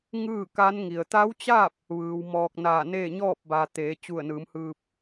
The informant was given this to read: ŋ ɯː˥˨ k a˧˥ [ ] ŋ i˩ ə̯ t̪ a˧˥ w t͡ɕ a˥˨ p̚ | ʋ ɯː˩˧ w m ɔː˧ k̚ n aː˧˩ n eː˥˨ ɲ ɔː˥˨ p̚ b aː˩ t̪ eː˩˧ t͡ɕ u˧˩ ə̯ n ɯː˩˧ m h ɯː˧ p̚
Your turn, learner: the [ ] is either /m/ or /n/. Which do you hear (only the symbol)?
n